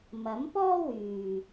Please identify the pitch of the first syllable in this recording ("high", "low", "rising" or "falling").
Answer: rising